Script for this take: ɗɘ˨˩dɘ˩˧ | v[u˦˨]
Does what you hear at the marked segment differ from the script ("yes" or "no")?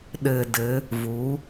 yes